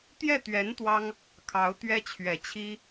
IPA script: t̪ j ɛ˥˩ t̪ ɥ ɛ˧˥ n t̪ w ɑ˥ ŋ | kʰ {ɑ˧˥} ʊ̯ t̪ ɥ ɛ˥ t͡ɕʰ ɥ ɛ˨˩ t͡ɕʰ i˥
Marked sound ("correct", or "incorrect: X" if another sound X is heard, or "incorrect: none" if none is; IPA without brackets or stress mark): correct